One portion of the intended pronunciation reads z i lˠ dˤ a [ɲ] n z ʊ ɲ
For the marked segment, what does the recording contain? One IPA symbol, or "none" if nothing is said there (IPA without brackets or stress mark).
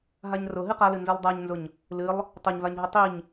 ɲ